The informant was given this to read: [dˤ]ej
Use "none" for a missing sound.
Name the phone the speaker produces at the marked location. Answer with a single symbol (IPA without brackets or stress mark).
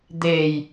d̪